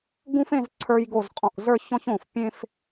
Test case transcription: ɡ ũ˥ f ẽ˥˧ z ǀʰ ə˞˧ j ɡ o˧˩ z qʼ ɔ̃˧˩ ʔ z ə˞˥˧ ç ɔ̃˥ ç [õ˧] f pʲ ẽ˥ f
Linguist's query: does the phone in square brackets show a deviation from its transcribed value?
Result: yes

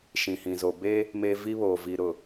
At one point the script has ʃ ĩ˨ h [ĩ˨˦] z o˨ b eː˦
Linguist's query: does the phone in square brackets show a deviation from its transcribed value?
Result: yes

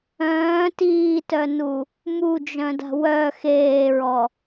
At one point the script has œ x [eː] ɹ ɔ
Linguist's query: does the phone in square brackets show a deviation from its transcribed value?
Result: no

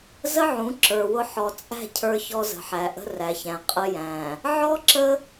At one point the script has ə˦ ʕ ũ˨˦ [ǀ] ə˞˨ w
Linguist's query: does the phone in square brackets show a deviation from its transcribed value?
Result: yes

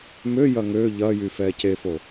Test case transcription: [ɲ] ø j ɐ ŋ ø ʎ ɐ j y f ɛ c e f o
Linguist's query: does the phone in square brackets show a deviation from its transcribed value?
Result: yes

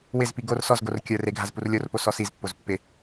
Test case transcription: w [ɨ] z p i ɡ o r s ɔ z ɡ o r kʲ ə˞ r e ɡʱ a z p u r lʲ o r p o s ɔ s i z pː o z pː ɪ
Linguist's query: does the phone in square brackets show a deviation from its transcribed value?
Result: yes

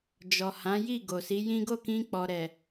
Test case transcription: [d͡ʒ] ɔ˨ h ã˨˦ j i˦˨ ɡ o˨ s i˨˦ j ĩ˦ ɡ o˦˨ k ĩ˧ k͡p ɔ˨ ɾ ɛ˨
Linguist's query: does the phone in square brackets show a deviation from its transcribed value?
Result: no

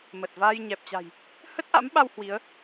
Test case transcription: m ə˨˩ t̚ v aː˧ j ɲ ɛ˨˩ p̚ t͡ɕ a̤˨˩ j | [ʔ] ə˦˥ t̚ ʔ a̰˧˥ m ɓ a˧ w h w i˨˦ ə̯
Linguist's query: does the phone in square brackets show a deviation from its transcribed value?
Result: yes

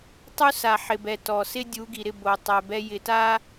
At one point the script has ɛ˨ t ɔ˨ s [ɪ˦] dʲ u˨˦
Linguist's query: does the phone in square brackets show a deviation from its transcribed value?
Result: no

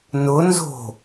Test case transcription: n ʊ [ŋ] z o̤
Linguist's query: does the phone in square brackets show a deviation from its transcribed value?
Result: yes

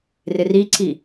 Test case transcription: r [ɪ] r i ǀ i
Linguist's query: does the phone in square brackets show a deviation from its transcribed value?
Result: no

